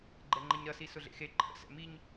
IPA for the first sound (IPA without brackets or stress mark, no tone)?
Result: ɡ͡ǃ